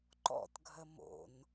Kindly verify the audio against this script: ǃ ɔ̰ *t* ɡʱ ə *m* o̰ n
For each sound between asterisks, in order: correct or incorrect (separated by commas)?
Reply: correct, correct